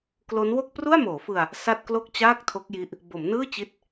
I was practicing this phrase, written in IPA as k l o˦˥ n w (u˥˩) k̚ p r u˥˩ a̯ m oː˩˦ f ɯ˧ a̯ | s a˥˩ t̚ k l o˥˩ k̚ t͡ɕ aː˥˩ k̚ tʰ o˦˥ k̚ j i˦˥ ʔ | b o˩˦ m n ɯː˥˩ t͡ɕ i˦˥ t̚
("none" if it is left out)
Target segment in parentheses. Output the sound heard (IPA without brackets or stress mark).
o˥˩